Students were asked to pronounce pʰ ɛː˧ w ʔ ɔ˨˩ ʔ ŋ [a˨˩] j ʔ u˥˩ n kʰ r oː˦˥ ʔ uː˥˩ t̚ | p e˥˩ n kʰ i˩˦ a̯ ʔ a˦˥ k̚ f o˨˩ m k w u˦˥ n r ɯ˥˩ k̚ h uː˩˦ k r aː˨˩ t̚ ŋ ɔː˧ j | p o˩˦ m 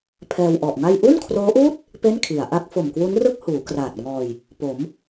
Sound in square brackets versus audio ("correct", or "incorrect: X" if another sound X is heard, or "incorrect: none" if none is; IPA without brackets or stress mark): incorrect: a˥˩